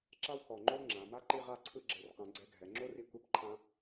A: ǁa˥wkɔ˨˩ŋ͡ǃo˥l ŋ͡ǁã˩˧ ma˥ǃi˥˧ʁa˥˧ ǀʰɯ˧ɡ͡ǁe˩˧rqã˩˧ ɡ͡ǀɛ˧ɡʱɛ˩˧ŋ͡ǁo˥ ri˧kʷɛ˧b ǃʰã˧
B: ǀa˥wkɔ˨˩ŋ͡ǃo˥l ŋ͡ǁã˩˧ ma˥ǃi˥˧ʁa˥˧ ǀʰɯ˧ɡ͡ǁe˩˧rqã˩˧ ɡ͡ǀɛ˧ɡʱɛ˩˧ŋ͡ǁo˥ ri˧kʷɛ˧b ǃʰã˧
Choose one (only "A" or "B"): A